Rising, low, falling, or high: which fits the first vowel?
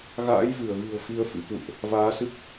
rising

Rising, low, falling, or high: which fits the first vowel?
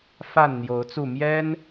falling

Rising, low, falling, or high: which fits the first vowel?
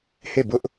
falling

